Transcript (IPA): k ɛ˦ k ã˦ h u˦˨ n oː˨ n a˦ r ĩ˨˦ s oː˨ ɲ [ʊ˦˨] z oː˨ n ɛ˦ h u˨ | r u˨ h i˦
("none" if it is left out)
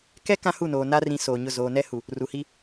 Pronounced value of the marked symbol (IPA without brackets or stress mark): ʊ˦˨